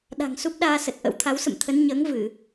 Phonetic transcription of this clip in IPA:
ɗ a̤˨˩ ŋ s u˦˥ p̚ ɗ aː˧ s ə˨˩ t̚ ʔ ə̰˧˥ w t̪ʰ a˨˦ w s ə̰˧˨ m t̪ʰ ə˨˦ n ɲ əː˨˦ ŋ v ɨ˧˩˨

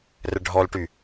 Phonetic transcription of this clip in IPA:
r ə ɖʱ ɔ l ʈ y

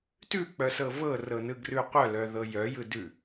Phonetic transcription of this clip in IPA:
t ʉ k͡p œ s ɤ v ɤ r ɤ n ɯ ɡ r ʉ qʷ œ l œ ð ɤ j œ j ɯ d ʉ

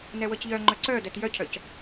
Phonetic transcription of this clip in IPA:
n ɛ w ɤ c ʎ œ ŋ͡ǃ œ ǀ œ d ɛ t j œ cʰ œ c

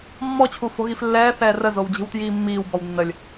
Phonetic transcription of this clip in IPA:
mː ɔ t͡ɕʰ u f o̤ ɣ i f lː ɛː θ ɛː r ə z o w d͡ʑ i̤ w t j iː mː iː w b ɔ w nː ə lʲ

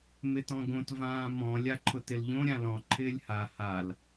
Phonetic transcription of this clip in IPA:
m ɪ t ɔ̃ ɡ õ t v ãː m ɔ̃ lʲ a ǃʰ ʊ t ɪ l ʎ õ ɾʲ ã l ɔ̃ ǃʰ ɪː lʲ h a h a l

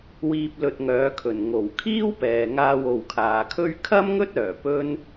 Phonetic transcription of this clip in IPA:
w iː˧ p̚ l ɵ˧ t̚ ŋ œː˨˥ kʰ ɵ˨˩ n ŋ o˨˩ w kʰ iː˥ w p ɛː˨ ŋ aː˧ w o˨ w kʰ aː˨ kʰ ɵ˥ ɥ kʰ ɐ˥ m ŋ ɵ˥ t̚ œː˨˩ p ɵ˥ n

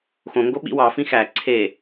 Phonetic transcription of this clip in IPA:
x õ ŋ ɡ o ɓ ḭ w ɑ f ĩ x æ ǀʰ e

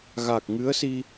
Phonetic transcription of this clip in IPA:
ɣ a˨˩ k̚ ŋ ɨ˧˥ ə̯ s i˧

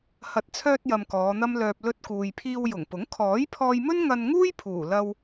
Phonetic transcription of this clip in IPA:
h ɐ˨ t̚ t͡sʰ œː˧ t̚ j ɐ˧ m k ɔː˨˧ n̪ ɐ˥ m l œː˧ p̚ l ɵ˧ t̚ k uː˨ j pʰ iː˧ w j ʊ˨˩ ŋ p ʊ˨˥ ŋ kʰ ɔː˨˥ j pʰ ɔː˧ j m ɵ˥ n ŋ ɐ˧ n ŋ uː˥ j pʰ uː˨˩ l ɐ˧ w

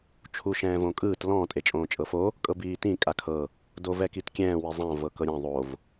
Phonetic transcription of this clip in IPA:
t͡ʃʰ u ʃ ɛ̃ː v õ kʼ ɯː t l ɔ̃ tʼ e t͡ʃʼ õː t͡ʃʼ ɤ f o | kʼ ɤ b iː t ĩ kʼ a kʰ ɤ | d o v ɛ k i t kʲ ɛ̃ː w i zˤ ã v ɤ k ɤ ɾʲ ã ðˤ o v

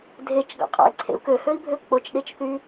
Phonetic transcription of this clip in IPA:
dʱ e t͡ʃ ɡ ɑ̰ qʼ ɑ̰ i̯ ǀʰ ḛ u̯ k ø h ø i̯ bʱ ø k͡p o t͡ʃ ɗ e t͡ʃ θ y

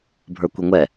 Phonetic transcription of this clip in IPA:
bʱ ə˞ kʷ i ŋʷ ɛ

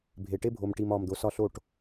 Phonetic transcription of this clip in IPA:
bʱ e˨ ʈ e˥ bʱ o˨ m ʈ i˨ m ɒː˨ m d̪ o˩˥ s ɒ˥˩ ɬ o˥˩ ʈ

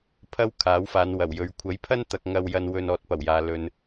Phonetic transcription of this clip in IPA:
pʰ ɐ˥ w kʰ aː˨˥ w f aː˨˧ n w ɐ˨˩ w j ɵ˨ ɥ kʷʰ ɐ˨˥ j pʰ ɐ˥ n t̪ ɐ˨ k̚ ŋ ɐ˧ w j ɐ˧ n w ɵ˧ n ɔː˨ t̚ p ɐ˨˩ w j aː˨ l ɵ˨ n

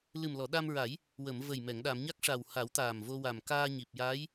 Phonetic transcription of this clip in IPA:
l ɨ˨˩ m l ɔ˨˩˨ ɗ a˧ m ɹ a˨˩˦ j | w ə˨˩˨ m v ə˨˩ j m ɛ˨˩˨ ŋ ɗ a˨˩˨ m ɲ a˦˥ k̚ ʂ a˨˩ w h a˨˩˦ w t̪ aː˨˩ m v o˧ w a˨˩ m k aː˧ ɲ i˨˩ p̚ j a˧˥ j

